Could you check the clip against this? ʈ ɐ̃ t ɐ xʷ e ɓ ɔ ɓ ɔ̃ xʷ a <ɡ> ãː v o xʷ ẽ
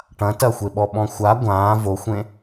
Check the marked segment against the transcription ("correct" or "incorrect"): incorrect